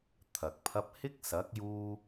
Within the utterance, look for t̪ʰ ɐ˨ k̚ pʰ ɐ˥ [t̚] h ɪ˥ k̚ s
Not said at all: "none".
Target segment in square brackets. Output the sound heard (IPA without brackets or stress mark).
p̚